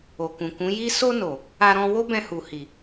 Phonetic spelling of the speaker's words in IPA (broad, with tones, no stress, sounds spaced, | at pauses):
o˨ k ũ˨ k ũ˨˦ j i˦ s o˧ n o˨ | a˧ ɾ ɔ̃˧ w o˦ b ɛ̃˧ h u˨ h i˨